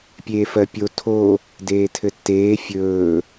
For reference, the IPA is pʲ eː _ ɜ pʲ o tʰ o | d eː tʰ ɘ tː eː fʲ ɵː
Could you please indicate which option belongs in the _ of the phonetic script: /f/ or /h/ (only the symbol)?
f